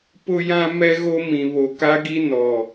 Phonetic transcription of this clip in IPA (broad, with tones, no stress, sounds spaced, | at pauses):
p ʊ˦ j ã˦ m ɛ˦ ɣ o˦ m ĩ˨ β o˨ k a˦ ɡ i˦ n ɔ˨